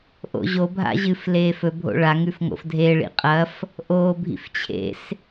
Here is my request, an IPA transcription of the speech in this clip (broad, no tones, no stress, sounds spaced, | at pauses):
ʔ o̰ ʑ o bʱ a̰ ʑ ɨ f l eː f ɵ bʱ o̰ ɭ a ŋ ʉ f ŋ o̰ f dʱ e ɭ ḭ qʼ ɐ f | ʔ o bʱ ḭ f t͡ɕʰ ḛ s